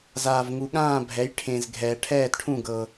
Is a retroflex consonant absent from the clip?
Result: no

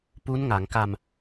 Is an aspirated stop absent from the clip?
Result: yes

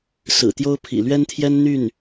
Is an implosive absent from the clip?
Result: yes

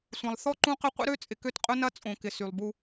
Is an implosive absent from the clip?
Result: yes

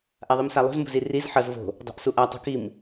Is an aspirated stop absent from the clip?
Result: yes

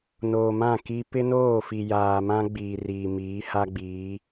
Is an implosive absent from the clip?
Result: yes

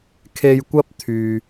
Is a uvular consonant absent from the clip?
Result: yes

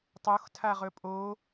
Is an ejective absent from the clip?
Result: no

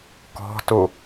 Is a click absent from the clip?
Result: yes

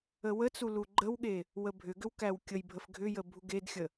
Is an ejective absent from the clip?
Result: yes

